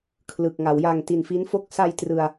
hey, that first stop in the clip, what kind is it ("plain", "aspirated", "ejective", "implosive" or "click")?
aspirated